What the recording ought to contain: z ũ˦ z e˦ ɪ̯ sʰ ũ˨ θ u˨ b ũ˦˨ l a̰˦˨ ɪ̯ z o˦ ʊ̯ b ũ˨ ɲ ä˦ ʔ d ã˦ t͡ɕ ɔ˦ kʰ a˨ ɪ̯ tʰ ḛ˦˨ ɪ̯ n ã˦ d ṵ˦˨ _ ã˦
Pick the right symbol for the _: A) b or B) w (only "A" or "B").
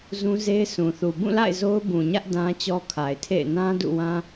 B